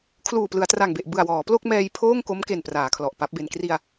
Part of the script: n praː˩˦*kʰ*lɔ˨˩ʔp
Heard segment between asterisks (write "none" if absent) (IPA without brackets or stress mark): kʰ